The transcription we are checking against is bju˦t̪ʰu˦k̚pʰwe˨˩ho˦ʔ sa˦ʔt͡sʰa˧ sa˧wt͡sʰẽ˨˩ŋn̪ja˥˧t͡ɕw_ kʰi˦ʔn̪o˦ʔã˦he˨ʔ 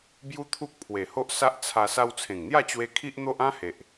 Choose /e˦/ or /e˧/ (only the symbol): e˧